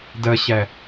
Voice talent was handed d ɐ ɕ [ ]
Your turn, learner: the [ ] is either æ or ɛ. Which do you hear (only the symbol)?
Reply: æ